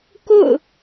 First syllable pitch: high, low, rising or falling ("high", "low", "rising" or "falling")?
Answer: falling